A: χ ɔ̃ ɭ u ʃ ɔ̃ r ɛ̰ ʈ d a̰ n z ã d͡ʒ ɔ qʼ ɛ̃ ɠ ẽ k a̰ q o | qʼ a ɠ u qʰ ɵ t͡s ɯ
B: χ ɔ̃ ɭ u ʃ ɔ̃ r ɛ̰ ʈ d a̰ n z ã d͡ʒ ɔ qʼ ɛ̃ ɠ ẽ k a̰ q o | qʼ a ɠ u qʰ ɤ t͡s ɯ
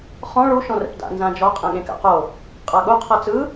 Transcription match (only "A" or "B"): B